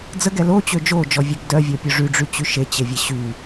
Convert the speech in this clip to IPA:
d͡z ə ɡ ɛ l o t͡ɕ ø d͡ʒ o d͡ʒ ɔ vʲ ɛ ɡ d œ vʲ ɔ pʲ o ʐ y ɖ͡ʐ y t͡ɕ y ʃ e t͡ɕ e vʲ e ɕ y

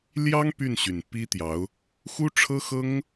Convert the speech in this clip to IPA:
l j ɑ˥ ŋ p y˥˩ n ɕ y˨˩ n p i˥ t̪ j ɑ˧˥ ʊ̯ | x u˥ ʈ͡ʂʰ ɤ˥ x ɤ˥ ŋ

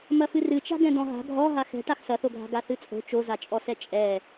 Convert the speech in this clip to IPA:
m ɐ f ɨ r ɨ t͡ʃ a̤ ɡ ɛ̃ d̪ ɔ̃ ɦ a̤ ɡʱ ɔ ɦ a x ɛ̤ ʈ a x s ɐ θ o ɡʱ a̤ ɡ a θ ɨ t͡sʼ o̤ t͡ʃ o z a t͡ʃʼ ɔ s ɛ t͡ʃʼ ɛ

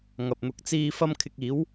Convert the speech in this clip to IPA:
ŋ ɐ˨ p̚ n̪ ʊ˧ k̚ t͡s iː˥ f ɐ˥ m kʰ ɪ˧ k̚ iː˨˥ w

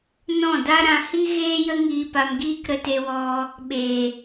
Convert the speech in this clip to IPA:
n ɔ̃˦˨ d a˦ ɾ ã˧ h i˦ ɣ eː˦ j ə˦ ŋ iː˧ p a˧ m ɡ iː˦ k ɾ ə˧ t e˧ w ɔ˧ | ɓ e˨

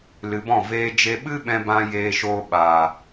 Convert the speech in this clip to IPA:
l ɨ˨ b ɔ̃˦˨ v eː˧ d͡ʒ e˧ ɓ ɨ˦ ɓ ɛ̃˧ b ã˧ j eː˧ ʃ oː˧ ɓ a˨

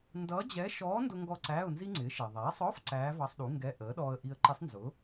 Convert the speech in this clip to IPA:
n d ʌː˧˥ d͡ʑ ɛ˧˥ ʃ ɔː˧˥ n d ʊ˧ ŋ ɡ ɔ˧ ǀ æː˧˥˧ ʊ̯ n z i˥ ŋ͡ǀ ɪː˩˥ ʃ ɛ˩ ðˤ æː˩˥ sˤ ɔ˧˥˧ f ǀ æː˧˥ v ɑ˧ sˤ ɗ u˩˥ ŋ ɡ ɛ˧˥˧ ʔ əː˩˥ ɗ ɔː˧ ə̯ ʔ i˧ ə̯ ǃ i˧˥ sˤ n z ʊ˩˥

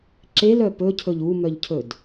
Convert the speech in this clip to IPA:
ǁ e l œ p ɵ cʰ ɵ ʎ u m œ ʎ cʰ ɵ d

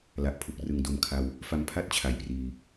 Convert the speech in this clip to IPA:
l a˨˩ ʔ pʰ u˨˩ k̚ r ɯ˩˦ ŋ d o˨˩ m kʰ a˧ w | f a˧ m pʰ a˥˩ t̚ t͡ɕʰ a˩˦ j p r iː˧

